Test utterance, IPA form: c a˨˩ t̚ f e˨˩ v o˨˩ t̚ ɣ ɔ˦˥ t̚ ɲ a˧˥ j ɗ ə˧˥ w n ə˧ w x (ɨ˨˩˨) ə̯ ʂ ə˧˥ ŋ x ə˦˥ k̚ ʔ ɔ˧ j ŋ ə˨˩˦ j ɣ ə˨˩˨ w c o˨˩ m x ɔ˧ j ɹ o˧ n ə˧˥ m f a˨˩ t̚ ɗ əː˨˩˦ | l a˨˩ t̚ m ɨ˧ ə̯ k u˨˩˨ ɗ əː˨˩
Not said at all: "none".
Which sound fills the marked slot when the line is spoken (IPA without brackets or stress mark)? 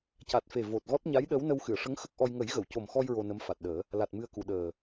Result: ɨ˨˩˨